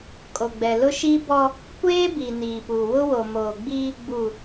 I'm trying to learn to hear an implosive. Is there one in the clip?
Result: no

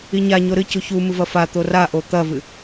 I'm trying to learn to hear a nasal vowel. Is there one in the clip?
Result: no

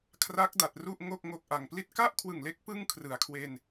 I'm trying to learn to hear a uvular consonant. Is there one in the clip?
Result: no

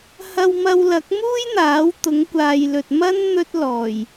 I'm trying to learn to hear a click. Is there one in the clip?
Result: no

